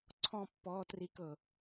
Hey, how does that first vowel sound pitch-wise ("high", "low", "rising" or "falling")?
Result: falling